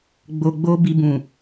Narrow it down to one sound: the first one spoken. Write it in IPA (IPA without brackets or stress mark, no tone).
ɡ͡b